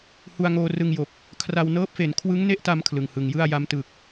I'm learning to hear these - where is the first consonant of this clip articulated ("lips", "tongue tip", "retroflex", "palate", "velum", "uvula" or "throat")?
throat